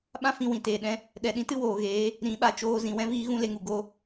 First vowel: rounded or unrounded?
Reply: unrounded